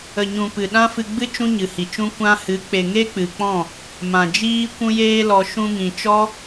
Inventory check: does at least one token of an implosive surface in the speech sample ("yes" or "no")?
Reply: yes